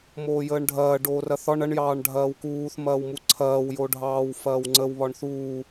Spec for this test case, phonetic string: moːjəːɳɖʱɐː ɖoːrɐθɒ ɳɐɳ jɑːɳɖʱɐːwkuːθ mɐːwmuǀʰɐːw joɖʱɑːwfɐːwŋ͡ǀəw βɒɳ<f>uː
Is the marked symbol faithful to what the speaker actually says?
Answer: no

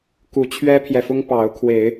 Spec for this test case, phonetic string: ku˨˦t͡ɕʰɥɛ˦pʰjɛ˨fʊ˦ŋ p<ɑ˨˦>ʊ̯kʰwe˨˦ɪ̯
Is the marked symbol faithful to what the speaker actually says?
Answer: yes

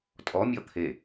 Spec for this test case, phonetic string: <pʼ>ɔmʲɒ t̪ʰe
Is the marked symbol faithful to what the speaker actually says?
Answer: no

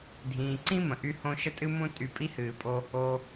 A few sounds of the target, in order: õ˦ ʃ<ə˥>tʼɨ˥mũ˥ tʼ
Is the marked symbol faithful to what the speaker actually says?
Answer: yes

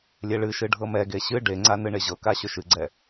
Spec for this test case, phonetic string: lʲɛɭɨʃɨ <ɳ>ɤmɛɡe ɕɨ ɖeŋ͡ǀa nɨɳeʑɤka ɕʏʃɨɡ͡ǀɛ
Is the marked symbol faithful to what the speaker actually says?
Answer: no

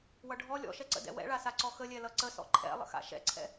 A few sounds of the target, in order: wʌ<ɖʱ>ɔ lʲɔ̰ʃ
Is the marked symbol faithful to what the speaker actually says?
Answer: yes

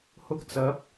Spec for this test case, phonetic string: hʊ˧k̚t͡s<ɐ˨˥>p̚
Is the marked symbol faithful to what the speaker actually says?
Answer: yes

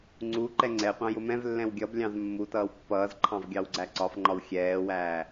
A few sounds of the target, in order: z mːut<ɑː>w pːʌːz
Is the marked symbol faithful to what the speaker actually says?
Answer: no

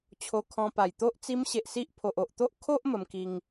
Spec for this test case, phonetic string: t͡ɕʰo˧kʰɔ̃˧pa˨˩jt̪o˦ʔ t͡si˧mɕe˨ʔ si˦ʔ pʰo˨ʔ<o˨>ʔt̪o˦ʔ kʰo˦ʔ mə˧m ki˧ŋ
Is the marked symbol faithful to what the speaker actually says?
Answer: yes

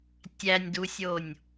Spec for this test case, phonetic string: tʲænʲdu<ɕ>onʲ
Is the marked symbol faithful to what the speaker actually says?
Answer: no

